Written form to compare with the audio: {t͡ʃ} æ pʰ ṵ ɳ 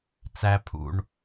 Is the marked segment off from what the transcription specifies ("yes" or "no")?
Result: yes